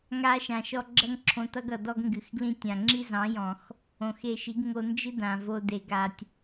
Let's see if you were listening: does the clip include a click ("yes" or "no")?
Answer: yes